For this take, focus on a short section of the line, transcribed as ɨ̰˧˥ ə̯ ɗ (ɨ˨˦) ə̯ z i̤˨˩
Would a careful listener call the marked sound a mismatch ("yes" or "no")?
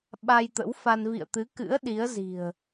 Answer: yes